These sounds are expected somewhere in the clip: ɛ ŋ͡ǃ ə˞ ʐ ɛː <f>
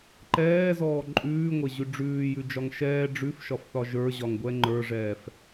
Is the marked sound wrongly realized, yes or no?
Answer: no